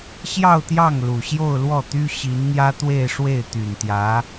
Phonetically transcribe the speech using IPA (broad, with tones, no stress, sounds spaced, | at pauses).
ɕ j ɑ˥˧ ʊ̯ t̪ j ɑ˥˩ ŋ l u˨˩ ɕ j o˥˧ ʊ̯ l w ɔ˥˩ t̪ y˥ ɕ i˧˥ n n̪ j ä˥ t̪ w e˥˧ ɪ̯ ʂ w e˥˩ ɪ̯ t̪ y˨˩ n t̪ j ä˧˥